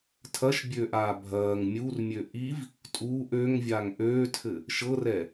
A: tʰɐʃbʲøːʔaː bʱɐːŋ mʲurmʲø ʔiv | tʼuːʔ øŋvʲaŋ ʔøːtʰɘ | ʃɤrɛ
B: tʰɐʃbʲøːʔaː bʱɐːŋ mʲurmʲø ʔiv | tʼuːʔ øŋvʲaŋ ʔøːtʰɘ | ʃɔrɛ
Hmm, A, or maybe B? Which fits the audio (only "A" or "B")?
A